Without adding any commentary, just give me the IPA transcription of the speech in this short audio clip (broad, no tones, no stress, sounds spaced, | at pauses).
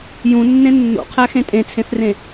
j ũ nː ẽ nː o̰ qʰ æ x ẽ tʼ ẽ t͡sʰ ẽ θ r ẽ